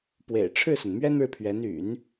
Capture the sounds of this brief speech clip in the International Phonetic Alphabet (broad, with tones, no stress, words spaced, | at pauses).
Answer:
pwḛ˨˩ɪ̯ʈ͡ʂʰɻ̩˥˩sə˩n mɥɛ˥nɻɻ̩˨pʰɥɛ˧˥n y̰˨˩˦n